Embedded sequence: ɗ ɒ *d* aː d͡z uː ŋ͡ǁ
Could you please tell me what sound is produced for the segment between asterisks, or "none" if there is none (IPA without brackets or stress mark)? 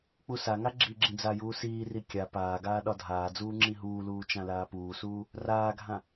dʱ